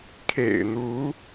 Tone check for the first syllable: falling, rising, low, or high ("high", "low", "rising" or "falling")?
low